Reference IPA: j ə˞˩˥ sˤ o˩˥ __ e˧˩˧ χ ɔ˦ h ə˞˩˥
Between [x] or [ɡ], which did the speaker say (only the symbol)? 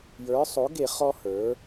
ɡ